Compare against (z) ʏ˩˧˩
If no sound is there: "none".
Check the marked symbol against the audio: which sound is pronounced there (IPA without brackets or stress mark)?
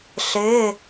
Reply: ɬ